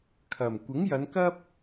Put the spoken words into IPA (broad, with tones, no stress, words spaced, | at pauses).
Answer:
kʰɐ˨˩m kʷɪ˨˥ŋjɐ˨˧nkɐ˥p̚